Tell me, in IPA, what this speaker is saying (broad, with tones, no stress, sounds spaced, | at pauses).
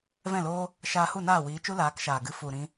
v ɛ̃˦˨ l oː˦ | ʃ aː˧ h u˦˨ n aː˦˨ w iː˨˦ t͡ʃ u˦ l aː˨˦ k ʃ aː˨ ɡ ɨ˨˦ f u˨ ɾ ĩ˦